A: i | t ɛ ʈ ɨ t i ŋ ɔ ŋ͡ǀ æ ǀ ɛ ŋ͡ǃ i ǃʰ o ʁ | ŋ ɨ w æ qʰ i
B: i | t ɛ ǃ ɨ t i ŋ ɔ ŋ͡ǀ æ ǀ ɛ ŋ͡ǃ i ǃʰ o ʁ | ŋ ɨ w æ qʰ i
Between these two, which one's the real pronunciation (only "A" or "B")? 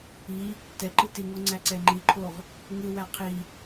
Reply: B